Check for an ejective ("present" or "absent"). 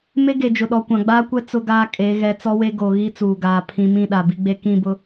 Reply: present